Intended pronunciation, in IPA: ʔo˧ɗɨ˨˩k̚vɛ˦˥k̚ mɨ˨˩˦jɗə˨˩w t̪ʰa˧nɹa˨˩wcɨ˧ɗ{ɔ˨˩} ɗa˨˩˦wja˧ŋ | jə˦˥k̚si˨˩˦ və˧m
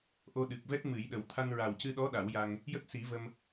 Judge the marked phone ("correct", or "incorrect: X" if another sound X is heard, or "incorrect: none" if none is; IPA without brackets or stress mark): incorrect: ɔ˧˥